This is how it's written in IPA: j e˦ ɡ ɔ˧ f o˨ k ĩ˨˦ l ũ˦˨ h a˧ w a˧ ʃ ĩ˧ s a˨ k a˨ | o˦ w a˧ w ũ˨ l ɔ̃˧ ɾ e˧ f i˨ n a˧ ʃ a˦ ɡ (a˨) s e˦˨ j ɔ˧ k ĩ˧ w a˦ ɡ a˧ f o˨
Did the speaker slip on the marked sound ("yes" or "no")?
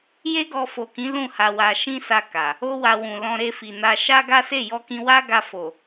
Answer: yes